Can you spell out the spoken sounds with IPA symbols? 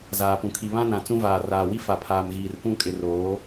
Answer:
z aː˨ p ũ˨ kʰ i˨ β ã˦ n ã˨ t͡s ũ˦ v aː˨ r aː˨ w i˦ f a˨ pʰ aː˨ m ɣ iː˨ r p ũ˦˨ kʼ ɪ˨ r oː˨˦

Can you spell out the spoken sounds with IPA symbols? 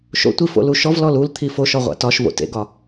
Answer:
ʃ o̰ tʷ i f o̰ l u ʃ ɔ v l ɔ l u l t̪ʰ i f o ʃ ɒ ʁʷ a̰ t ɒ ʃ v o̰ t ḛ ɡ ɒ

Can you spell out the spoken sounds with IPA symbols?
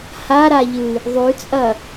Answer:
h a ɾ a ʎ ɨ | ðˤ ʉ t͡sʼ ɐ

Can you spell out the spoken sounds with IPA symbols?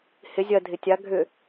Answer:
h ɪ zʲ ɐ dʱ ɪ tʲ a ɡʱ ʏ

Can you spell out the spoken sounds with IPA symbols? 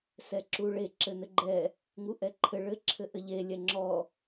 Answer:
s ɛ ǁ u ɭ e ǁ ɘ n ɘ ɡ͡ǃ ɛ | ŋ u ʔ ɛ ǃʰ ɘ ɭ ɘ ǁʰ ɘ ʔ ɘ ʎ e lʲ ɛ ŋ͡ǁ ɔ

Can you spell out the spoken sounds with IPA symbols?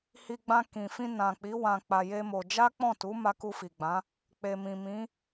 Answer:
h i˧ ɡ͡b ã˧ k ĩ˨ f ĩ˧ n ã˨ k͡p i˨˦ w ã˧ k͡p a˧ j e˦ m o˧ d͡ʒ a˦ k͡p ɔ̃˦˨ t u˨˦ m a˧ k u˧ f i˨ ɡ͡b ã˨˦ | k͡p e˨ m ĩ˨ m ĩ˨˦

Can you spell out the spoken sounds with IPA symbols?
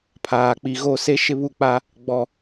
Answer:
pʰ aː˨ k͡p i˨ ɣ o˦˨ s e˦ ʃ ɪ˦ β u˦˨ k͡p a˦ | ɡ͡b ɔ˨

